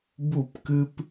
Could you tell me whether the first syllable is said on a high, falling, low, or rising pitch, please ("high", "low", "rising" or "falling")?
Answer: falling